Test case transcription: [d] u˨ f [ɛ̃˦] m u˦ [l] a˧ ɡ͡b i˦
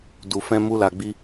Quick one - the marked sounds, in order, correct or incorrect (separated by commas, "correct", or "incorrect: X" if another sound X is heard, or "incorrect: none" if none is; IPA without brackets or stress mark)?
correct, incorrect: ɛ̃˧, correct